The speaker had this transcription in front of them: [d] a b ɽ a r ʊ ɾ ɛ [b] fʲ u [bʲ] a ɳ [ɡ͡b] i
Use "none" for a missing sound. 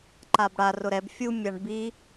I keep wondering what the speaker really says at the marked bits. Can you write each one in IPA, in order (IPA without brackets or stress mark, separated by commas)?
ǃ, b, mʲ, b